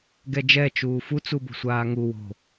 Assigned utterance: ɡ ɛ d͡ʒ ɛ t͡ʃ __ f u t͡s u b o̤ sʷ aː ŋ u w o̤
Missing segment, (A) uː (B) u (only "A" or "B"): A